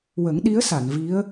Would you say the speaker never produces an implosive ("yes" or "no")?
no